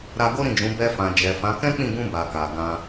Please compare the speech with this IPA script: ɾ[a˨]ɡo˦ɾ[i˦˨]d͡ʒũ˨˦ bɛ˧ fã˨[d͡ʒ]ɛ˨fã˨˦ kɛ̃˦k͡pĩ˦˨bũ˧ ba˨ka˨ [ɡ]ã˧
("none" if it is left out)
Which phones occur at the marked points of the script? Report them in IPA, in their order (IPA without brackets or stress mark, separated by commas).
a˧, ĩ˦˨, d͡ʒ, ɡ